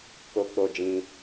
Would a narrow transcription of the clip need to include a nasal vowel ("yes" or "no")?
yes